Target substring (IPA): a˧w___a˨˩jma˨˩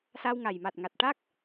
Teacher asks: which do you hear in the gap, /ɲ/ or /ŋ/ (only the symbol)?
ŋ